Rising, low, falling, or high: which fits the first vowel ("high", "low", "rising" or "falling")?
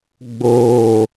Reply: falling